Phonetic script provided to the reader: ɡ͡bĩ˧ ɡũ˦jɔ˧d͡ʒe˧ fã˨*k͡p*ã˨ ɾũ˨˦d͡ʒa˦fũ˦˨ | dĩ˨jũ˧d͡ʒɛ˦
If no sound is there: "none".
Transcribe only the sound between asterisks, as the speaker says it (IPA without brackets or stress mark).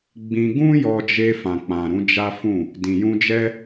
k͡p